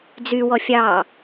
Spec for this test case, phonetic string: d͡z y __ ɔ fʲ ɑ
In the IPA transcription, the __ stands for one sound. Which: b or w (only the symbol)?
w